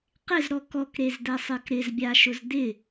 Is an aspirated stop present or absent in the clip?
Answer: absent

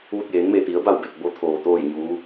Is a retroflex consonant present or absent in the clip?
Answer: absent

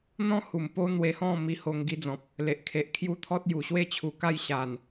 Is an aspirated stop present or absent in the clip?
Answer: present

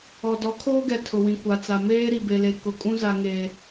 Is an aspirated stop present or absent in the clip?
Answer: present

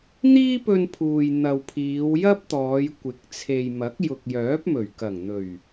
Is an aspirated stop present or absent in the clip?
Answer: present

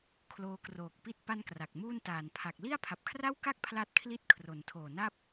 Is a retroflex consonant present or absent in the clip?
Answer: absent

